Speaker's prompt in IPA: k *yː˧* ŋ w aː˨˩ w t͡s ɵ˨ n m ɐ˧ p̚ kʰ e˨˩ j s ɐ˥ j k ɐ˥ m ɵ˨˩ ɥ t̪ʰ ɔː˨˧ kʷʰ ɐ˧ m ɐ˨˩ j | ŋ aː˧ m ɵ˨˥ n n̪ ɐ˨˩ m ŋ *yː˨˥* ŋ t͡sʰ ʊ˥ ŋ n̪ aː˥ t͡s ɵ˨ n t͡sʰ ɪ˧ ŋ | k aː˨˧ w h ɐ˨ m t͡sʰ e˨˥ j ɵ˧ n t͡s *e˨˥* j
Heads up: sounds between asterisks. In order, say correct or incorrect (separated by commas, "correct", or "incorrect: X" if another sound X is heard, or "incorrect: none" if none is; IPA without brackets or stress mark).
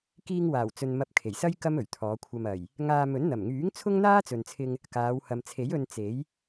incorrect: iː˧, correct, correct